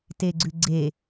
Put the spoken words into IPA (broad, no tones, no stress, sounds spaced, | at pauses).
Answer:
t e ɡ͡ǀ ʉ ɡ͡ǀ e